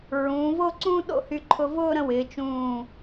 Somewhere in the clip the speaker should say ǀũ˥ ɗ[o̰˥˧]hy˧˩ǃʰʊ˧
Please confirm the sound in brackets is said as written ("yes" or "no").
yes